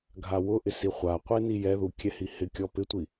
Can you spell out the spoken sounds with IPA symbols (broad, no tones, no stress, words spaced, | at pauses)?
ɡʱawʊʔɪ siχʷaqʷe nijɛðu kʲɛhihɪkʲɔ pɪtʷi